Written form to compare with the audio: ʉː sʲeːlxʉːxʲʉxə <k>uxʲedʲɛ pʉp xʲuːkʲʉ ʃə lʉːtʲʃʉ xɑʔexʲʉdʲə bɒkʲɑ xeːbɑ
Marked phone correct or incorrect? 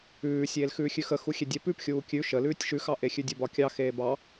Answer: incorrect: x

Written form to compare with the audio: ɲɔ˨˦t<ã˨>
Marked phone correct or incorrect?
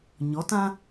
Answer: incorrect: ã˦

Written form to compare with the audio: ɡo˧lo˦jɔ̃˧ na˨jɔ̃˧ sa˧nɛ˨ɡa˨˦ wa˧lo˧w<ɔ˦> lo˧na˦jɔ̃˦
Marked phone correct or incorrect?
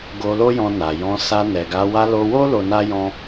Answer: incorrect: o˦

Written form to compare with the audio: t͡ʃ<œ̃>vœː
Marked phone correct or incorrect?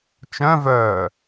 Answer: correct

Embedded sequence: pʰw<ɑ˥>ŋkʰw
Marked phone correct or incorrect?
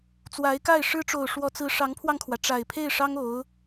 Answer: incorrect: ɑ˧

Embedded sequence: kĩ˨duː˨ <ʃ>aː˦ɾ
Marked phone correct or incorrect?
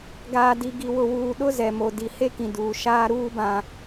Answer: correct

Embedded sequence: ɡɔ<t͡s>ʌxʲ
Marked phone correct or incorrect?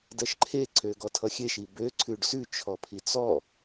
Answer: incorrect: tʰ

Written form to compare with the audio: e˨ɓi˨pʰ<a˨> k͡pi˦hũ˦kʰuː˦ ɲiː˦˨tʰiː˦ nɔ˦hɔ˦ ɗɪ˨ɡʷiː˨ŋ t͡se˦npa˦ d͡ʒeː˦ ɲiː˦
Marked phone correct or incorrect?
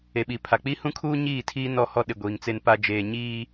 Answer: correct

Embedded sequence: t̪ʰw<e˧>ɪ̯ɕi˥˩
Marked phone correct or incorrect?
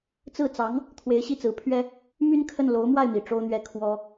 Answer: incorrect: e˧˥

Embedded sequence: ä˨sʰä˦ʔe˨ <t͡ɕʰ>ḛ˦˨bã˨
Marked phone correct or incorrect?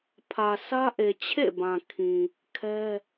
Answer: correct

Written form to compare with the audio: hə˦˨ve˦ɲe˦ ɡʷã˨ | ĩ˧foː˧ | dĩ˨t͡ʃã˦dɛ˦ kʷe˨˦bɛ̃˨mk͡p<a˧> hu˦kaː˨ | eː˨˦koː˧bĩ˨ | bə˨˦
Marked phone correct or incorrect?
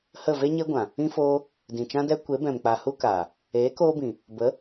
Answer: incorrect: a˨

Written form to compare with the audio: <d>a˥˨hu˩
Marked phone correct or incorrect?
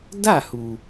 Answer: correct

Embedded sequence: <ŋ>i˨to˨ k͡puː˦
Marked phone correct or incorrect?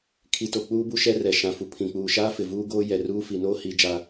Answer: incorrect: kʰ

